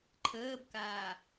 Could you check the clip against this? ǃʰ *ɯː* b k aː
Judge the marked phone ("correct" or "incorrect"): incorrect